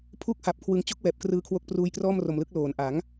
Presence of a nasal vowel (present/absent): absent